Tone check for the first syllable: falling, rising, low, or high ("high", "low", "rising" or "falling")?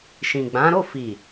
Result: low